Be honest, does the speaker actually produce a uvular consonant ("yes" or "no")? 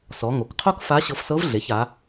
yes